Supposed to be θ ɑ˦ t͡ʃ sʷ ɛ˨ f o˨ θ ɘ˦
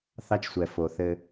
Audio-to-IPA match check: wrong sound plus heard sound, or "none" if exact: none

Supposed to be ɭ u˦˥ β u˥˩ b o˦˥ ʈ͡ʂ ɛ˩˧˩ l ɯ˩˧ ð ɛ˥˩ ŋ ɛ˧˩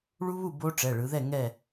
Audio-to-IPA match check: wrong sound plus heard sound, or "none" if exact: l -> ɭ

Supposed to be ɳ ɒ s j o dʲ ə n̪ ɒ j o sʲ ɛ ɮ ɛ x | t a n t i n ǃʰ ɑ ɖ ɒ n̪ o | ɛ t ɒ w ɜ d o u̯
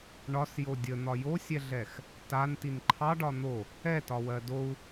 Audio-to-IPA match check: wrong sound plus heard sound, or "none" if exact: none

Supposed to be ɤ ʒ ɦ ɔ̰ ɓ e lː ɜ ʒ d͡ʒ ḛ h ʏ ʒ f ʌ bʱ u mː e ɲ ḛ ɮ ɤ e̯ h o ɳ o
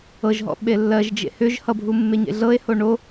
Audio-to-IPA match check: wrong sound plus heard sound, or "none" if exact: f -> h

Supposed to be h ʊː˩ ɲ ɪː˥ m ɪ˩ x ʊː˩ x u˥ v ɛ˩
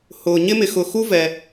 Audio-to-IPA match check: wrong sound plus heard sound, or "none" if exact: none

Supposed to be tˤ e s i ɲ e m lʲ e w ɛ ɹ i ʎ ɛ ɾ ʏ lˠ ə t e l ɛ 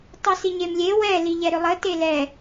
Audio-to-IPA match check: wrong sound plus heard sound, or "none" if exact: ɹ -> l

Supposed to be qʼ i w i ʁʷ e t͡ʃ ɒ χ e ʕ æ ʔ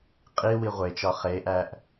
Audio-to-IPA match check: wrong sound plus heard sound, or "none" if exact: ʕ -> ʔ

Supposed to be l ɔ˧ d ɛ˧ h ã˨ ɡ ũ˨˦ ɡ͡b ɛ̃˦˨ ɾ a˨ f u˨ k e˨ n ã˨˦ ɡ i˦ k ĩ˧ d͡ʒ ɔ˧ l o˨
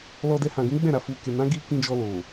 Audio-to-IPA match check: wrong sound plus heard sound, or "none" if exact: none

